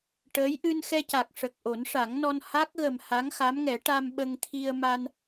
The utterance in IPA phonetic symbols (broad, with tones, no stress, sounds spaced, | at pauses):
ʈ əː˧˥ j ʔ ɨ˧ n x ɛ˧ c a˨˩ k̚ ʂ ə˨˩ k̚ ʔ o˨˩˦ n ʂ a˨˩˦ ŋ n ɔ˧ n h a˦˥ k̚ ɣ ə˨˩ m h a˧˥ ŋ x a˧˥ m ŋ ɛ˨˩˦ ʈ a˧ m ɓ ə˧ ŋ t̪ʰ i˧ ə̯ m a˧ n